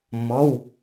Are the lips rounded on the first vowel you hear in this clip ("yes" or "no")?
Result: yes